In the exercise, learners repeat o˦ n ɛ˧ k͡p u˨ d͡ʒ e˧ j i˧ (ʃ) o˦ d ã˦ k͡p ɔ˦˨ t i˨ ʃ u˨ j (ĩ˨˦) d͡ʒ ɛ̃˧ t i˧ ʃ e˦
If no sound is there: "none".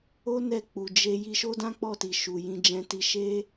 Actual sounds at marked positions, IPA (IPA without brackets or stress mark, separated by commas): ʃ, ĩ˧